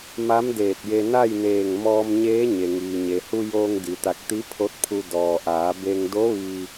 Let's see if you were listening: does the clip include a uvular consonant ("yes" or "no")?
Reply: no